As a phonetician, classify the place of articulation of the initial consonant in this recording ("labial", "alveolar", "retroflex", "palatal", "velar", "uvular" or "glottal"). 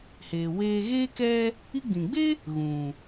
glottal